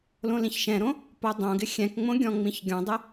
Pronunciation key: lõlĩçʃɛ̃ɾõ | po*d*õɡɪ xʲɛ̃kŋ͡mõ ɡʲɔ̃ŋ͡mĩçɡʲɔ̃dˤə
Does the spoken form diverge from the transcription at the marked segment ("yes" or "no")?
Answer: yes